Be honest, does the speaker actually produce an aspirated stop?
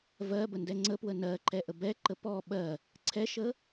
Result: yes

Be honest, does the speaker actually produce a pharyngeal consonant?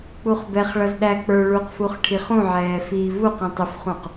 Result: yes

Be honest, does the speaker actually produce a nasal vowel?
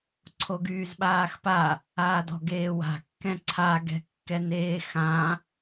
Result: yes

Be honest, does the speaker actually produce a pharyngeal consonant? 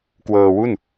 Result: no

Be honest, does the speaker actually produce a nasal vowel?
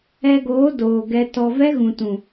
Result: yes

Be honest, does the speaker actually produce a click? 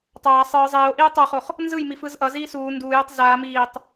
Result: no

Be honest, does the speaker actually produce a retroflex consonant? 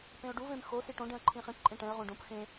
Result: yes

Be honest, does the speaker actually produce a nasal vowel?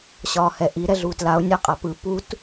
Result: no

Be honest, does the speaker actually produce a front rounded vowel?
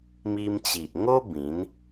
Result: no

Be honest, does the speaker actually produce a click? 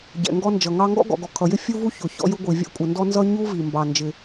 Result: no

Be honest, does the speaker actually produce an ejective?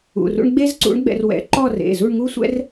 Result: no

